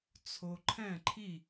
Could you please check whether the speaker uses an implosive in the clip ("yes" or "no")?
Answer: no